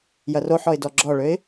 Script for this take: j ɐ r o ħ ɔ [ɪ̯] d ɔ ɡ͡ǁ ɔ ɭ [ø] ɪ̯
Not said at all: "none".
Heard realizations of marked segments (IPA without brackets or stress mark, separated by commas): ɪ̯, ø